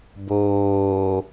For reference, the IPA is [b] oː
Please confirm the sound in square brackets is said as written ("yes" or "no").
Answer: yes